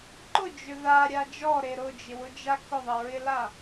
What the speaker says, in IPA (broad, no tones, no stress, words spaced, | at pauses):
ǃʊd͡ʒʏ ðaɾʲa d͡ʒɔɾe ɾʊd͡ʒɪwʊd͡ʒa kʊðˤɪɹɪla